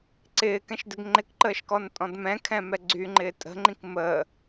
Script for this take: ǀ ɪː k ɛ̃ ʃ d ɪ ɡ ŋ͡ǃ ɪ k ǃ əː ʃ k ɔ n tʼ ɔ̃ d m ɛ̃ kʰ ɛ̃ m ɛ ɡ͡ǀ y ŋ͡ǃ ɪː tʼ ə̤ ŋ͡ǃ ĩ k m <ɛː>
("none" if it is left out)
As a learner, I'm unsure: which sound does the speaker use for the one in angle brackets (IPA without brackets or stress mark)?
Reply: əː